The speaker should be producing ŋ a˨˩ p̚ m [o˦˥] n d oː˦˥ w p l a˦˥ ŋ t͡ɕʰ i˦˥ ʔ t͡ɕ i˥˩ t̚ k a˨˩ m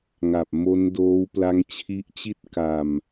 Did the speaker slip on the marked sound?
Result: no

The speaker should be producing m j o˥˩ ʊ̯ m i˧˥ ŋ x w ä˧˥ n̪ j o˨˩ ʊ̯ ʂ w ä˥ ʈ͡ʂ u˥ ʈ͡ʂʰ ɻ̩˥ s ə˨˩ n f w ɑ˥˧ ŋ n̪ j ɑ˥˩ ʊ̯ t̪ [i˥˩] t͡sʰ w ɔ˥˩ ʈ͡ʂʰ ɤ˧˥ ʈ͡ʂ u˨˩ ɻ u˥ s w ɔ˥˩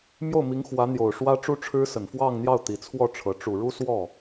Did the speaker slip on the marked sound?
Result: yes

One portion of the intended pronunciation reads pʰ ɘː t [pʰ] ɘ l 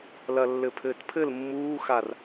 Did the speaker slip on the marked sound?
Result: no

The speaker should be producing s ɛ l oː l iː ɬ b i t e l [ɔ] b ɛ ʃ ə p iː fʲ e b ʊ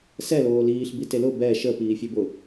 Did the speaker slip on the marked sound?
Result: yes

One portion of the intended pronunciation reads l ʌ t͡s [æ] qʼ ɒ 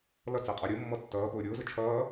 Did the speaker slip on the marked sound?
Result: no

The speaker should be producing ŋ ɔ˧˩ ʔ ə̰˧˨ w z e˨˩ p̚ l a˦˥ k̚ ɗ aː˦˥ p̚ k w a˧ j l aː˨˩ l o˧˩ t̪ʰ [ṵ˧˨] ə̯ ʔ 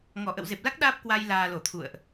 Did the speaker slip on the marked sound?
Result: no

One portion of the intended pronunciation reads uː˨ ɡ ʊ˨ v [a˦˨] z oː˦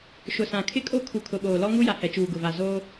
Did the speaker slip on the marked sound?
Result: yes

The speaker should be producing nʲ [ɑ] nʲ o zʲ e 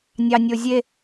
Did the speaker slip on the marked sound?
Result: no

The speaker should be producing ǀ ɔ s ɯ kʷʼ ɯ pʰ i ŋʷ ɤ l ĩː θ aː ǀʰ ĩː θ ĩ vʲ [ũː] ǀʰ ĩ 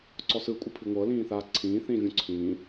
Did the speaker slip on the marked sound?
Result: yes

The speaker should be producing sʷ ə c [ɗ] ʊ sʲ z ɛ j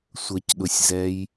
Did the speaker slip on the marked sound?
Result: no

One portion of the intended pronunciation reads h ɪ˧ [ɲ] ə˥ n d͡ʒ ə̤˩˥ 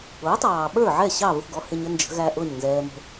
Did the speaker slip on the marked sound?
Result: no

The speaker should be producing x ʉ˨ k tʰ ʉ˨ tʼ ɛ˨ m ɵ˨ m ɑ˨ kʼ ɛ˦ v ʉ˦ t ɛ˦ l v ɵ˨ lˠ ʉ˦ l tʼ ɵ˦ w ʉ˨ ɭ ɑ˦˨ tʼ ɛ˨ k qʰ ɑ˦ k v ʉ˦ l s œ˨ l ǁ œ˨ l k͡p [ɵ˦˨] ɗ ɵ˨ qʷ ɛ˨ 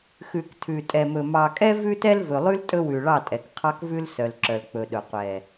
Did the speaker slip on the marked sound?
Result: yes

